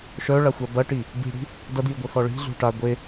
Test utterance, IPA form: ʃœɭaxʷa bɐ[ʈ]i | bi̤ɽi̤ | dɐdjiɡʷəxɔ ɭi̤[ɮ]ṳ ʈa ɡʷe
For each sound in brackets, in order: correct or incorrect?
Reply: correct, correct

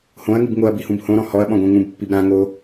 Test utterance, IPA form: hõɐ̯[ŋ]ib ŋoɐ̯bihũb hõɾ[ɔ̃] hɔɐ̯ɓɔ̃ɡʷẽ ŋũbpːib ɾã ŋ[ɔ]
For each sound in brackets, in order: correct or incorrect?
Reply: correct, correct, incorrect: o

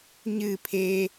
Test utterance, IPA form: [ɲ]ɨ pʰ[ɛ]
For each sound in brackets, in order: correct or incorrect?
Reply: correct, incorrect: e

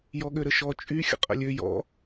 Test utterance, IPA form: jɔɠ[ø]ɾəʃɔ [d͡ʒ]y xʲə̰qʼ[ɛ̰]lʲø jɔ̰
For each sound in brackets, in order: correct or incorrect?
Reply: correct, incorrect: t͡ʃʼ, incorrect: ə̰

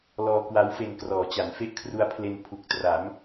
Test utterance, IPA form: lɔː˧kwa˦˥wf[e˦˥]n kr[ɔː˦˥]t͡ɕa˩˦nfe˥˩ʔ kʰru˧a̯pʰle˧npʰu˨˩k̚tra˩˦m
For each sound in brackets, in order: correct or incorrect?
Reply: incorrect: e˧, incorrect: ɔː˩˦

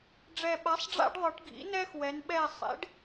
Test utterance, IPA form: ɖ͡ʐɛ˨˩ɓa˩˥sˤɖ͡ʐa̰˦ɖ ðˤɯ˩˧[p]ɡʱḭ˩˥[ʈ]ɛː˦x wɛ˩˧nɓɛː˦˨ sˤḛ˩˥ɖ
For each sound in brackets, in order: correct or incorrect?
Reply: incorrect: ʈ, incorrect: n

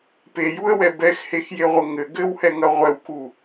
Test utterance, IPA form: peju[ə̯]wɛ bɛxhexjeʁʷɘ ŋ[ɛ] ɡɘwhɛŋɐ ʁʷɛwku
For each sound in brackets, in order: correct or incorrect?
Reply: correct, incorrect: ɘ

